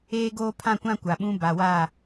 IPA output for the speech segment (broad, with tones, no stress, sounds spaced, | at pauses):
eː˦ ɡ oː˦ pʰ ã˦˨ kʷ ã˦ kʷ a˨ ɓ ũ˦ b a˨ w aː˦˨